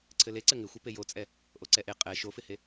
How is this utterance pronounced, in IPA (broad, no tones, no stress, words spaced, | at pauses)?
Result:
ǀʰɘleǀɘ ŋɪxʷɘ pejot͡sʼɛ | ʔoǀɛʔe qʼɛ ʃofɪhe